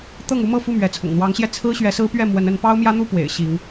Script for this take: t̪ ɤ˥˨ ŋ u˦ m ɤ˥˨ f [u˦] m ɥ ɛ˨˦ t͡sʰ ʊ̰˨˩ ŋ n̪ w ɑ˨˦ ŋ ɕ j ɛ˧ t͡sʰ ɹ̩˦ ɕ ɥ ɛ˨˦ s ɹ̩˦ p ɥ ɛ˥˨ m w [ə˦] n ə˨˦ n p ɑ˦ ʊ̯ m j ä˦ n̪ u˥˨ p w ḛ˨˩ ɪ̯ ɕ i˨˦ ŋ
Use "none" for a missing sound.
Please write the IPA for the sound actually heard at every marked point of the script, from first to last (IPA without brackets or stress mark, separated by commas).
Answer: u˥˨, ə˨˦